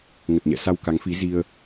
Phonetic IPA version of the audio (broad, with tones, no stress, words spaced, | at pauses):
ŋə˨˩t̚ɲɛ̰˧˨sa˧w ka˨˦ŋfi˨˦ zi˧ə̯